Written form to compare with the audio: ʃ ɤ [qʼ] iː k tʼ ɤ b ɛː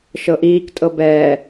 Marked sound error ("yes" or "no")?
yes